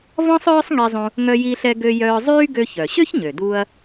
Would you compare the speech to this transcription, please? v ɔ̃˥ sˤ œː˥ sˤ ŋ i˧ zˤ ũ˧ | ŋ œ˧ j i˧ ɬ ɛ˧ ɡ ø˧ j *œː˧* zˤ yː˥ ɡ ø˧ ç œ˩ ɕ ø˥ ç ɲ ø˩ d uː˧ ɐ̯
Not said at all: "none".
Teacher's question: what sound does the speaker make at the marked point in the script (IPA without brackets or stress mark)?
œː˧